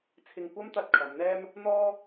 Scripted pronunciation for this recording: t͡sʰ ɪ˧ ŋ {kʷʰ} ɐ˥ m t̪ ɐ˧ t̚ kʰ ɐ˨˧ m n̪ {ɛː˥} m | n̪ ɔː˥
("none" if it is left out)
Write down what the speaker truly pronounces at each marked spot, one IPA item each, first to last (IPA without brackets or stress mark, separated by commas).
kʷ, ɛː˥